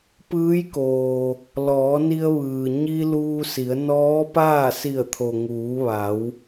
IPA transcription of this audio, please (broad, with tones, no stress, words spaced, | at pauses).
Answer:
pɯː˧˥jkoː˩ | lɔː˩˧ni˧ə̯ʋɯː˩ ɲi˧ luː˧si˩˧ə̯ nɔː˧˥paː˥˨ si˧˩ə̯t̪ʰo˩ŋuː˩˧ ʋa˩˧w